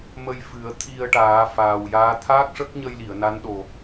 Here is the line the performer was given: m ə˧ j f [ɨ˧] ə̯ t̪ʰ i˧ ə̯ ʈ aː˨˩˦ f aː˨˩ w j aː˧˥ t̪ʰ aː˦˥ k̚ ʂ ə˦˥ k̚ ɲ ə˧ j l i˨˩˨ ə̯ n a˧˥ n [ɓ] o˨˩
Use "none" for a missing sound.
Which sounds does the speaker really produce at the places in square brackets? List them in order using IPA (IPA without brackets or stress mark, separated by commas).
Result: ɨ˨˩˦, ɗ